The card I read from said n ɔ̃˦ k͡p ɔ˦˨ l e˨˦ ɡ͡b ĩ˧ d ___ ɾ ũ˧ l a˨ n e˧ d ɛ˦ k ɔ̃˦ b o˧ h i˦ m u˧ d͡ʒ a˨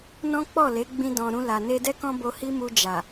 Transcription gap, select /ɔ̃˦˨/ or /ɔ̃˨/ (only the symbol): ɔ̃˨